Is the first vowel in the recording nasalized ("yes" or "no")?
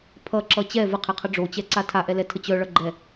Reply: no